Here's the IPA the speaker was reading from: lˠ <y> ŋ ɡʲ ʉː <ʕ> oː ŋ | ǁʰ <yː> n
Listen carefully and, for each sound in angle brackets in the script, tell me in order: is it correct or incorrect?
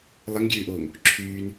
incorrect: ɪ, incorrect: ʔ, correct

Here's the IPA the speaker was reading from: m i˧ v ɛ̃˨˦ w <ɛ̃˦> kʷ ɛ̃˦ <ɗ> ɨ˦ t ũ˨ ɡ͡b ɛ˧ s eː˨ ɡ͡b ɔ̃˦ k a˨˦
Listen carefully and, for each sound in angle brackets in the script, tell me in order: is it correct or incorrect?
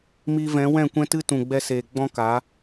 incorrect: ɛ̃˦˨, incorrect: t

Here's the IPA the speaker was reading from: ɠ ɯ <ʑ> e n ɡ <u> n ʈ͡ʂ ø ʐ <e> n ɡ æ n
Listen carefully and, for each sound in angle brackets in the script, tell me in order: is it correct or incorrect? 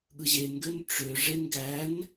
correct, incorrect: ø, correct

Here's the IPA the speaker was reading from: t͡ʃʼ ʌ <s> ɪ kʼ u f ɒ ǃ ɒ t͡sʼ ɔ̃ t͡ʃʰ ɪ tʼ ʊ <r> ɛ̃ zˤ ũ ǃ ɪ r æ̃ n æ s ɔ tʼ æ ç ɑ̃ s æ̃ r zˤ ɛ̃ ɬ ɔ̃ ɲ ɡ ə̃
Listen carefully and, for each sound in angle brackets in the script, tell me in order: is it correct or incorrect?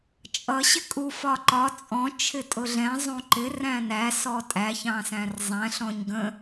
incorrect: ɕ, incorrect: ɮ

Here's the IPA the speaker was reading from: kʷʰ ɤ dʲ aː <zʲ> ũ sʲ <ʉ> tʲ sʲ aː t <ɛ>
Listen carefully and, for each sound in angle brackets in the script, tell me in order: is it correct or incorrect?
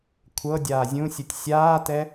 correct, incorrect: u, correct

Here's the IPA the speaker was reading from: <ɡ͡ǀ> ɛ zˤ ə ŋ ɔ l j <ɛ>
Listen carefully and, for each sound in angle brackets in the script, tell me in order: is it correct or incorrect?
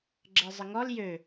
incorrect: ɡ͡ǁ, incorrect: ø

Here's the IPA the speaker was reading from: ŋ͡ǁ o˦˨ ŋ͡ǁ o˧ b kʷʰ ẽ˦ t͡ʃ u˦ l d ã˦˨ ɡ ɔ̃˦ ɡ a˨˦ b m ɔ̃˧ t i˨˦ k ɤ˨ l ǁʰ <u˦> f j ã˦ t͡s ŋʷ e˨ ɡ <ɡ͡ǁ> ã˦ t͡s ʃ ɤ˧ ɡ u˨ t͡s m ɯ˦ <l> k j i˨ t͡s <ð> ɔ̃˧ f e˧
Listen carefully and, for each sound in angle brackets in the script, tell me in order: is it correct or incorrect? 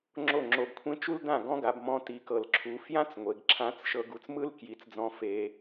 incorrect: u˨, incorrect: ǁʰ, correct, incorrect: d͡z

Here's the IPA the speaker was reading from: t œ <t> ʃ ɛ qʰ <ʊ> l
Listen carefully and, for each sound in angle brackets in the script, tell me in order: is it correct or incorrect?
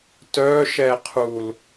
incorrect: none, incorrect: u

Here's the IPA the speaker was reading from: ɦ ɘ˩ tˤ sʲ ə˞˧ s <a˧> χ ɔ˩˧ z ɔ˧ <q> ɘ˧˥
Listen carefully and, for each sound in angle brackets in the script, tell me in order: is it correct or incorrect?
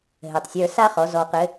incorrect: a˥, correct

